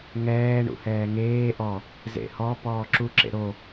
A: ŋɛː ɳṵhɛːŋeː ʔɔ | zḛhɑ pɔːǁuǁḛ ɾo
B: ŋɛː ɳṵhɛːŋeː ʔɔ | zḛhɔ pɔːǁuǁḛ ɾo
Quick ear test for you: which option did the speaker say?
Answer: B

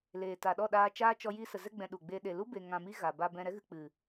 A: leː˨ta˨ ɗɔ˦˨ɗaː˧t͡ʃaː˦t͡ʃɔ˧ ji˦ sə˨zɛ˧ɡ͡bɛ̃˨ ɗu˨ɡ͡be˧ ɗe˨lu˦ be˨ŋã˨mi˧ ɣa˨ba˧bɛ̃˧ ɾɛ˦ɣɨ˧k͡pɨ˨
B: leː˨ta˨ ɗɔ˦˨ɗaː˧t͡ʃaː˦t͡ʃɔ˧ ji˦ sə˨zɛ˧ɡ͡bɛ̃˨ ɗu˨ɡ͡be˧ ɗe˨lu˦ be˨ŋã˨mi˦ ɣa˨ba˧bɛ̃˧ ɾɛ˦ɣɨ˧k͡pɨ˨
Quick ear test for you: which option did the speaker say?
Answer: A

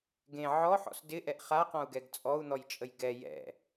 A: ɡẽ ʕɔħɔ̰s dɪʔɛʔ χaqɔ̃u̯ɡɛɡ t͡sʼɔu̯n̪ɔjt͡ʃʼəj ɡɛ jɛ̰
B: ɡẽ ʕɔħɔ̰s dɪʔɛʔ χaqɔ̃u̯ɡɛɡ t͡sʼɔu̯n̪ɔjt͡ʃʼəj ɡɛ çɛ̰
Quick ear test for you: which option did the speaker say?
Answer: A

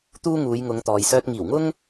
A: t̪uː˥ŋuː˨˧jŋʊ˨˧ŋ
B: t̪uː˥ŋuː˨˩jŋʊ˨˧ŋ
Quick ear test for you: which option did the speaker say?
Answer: A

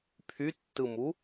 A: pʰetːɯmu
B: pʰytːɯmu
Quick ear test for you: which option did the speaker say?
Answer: B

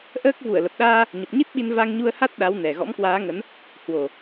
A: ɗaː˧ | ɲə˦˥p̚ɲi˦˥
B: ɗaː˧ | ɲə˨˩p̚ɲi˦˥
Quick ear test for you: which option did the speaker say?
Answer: B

